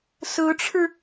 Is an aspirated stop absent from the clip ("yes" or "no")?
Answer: no